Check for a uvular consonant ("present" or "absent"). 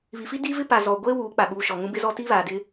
absent